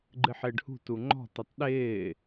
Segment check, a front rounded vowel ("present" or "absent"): absent